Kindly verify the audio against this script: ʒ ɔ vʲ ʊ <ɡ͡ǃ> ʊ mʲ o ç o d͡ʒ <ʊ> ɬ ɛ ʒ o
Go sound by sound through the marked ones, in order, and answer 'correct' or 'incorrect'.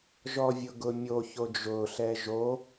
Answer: incorrect: ɡ, correct

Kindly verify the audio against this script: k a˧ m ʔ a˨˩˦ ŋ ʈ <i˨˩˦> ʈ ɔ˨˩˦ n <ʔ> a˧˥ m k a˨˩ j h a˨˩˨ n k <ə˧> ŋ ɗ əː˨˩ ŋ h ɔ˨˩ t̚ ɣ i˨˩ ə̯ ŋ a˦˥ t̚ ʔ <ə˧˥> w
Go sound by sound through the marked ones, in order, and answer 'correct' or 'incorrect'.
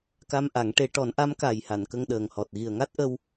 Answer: incorrect: e˨˩˦, correct, correct, incorrect: ə˧

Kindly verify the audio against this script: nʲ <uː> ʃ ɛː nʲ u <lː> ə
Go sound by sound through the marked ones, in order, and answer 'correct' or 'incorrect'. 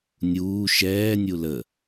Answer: correct, incorrect: l

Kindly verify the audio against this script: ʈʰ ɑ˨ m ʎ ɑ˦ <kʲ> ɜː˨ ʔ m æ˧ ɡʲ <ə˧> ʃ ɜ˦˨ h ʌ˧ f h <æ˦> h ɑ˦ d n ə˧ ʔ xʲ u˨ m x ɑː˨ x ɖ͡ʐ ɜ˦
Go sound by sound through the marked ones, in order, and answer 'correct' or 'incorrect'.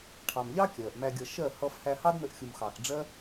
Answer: correct, incorrect: ʌ˧, incorrect: æ˧

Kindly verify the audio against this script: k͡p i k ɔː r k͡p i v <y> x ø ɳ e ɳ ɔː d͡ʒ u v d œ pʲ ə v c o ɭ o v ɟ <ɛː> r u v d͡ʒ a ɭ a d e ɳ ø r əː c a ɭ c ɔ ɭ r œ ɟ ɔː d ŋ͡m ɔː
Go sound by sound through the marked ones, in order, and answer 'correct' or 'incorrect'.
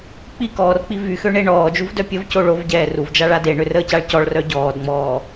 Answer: correct, correct

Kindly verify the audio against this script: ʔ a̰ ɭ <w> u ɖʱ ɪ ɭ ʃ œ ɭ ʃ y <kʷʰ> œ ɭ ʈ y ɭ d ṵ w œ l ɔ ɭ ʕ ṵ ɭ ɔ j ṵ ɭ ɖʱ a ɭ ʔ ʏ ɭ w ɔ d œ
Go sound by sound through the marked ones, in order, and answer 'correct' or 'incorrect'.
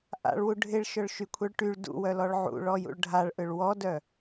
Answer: correct, correct

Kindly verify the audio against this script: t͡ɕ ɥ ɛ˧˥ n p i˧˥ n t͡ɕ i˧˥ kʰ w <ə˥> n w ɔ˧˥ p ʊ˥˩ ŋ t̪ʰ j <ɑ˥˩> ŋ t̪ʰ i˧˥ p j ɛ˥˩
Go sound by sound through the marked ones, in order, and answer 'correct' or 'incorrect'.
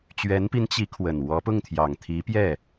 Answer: incorrect: ə˨˩, incorrect: ɑ˨˩

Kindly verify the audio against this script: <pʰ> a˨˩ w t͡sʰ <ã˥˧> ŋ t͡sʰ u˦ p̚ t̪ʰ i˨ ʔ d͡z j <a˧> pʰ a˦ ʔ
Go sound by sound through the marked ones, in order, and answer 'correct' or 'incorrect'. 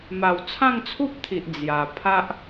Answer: incorrect: m, correct, incorrect: a˨˩

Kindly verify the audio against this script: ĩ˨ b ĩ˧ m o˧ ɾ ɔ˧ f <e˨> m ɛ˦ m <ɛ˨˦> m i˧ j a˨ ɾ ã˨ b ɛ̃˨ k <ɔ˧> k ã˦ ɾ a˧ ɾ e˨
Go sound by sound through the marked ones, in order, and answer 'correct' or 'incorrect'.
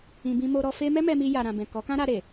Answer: incorrect: e˦, incorrect: ɛ˧, incorrect: ɔ˨˦

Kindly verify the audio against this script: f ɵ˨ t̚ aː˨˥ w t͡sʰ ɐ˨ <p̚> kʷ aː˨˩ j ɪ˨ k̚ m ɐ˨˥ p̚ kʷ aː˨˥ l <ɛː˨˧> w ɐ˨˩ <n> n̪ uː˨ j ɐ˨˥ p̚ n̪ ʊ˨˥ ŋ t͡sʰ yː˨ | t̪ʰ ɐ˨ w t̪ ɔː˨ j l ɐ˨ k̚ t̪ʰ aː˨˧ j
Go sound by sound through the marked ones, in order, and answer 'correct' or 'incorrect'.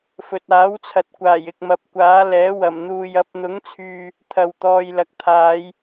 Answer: incorrect: t̚, incorrect: ɛː˨˥, incorrect: m

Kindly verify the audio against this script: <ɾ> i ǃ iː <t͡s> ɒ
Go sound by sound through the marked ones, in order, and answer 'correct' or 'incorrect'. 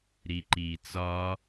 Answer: correct, correct

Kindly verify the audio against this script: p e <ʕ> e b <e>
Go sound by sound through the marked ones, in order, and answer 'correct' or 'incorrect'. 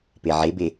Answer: correct, correct

